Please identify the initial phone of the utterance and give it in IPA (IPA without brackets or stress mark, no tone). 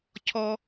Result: cʰ